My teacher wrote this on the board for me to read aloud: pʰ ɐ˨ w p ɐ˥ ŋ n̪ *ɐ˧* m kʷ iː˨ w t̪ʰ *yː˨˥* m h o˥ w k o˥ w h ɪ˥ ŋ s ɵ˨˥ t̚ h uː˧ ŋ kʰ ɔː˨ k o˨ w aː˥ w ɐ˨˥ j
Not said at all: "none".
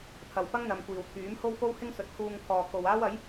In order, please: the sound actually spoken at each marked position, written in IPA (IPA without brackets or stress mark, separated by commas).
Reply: ɐ˨˧, yː˨˥